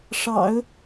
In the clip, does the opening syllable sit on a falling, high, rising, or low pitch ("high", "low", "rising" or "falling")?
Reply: low